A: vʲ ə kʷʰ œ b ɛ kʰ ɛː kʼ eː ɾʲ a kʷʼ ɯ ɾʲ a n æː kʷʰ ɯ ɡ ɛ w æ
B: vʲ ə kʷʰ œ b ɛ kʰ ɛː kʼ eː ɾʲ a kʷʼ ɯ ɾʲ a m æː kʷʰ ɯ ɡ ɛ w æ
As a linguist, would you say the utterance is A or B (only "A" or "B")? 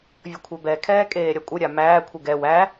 B